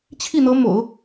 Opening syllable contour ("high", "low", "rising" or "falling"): falling